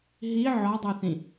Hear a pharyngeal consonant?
yes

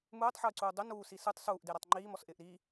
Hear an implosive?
no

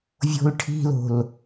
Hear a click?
no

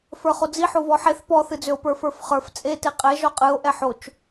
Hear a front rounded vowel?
yes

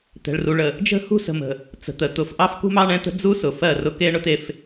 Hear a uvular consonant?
no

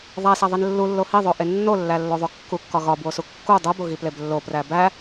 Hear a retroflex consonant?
no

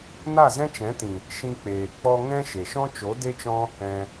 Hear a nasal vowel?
yes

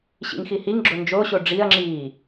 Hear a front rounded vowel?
no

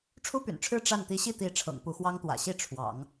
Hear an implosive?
no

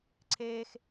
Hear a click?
yes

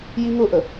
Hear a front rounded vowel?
no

